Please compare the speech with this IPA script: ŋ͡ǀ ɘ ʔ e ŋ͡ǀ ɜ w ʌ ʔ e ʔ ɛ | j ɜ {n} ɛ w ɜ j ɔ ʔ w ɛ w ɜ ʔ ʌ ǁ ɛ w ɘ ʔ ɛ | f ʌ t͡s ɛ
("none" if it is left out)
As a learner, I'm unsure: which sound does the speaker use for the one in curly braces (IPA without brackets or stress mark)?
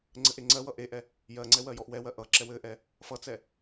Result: ŋ͡ǀ